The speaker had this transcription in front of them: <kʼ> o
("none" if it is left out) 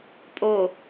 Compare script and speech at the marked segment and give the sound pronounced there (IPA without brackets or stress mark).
pʼ